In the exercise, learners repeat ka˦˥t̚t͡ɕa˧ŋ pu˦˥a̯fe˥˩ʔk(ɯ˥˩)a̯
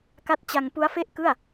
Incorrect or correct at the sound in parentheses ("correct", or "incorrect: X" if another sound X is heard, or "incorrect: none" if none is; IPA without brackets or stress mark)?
correct